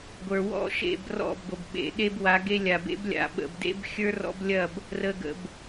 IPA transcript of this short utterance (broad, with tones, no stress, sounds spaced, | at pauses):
ɡʷ ə˞˨ w ɔ̰˦ ʃ ḛ˦˨ b r ɔ̰˦˨ b ɡʷ ə˨ b ɓ ḛ˨ ɗ e˦ b w a˨˦ ɡ e˦ lʲ a˨ b ḛ˦ b lʲ a̰˨˦ ɓ ə̰˨ b d ḛ˦ b xʲ ə˞˦ r ɔ̰˦ b lʲ ɐ˦˨ b | r ə˨ ɡ ə̰˨ b